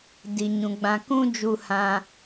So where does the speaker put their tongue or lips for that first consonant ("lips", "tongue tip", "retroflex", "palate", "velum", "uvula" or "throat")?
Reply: tongue tip